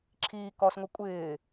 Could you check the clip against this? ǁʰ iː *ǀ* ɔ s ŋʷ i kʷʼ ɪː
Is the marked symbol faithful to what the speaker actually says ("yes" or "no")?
no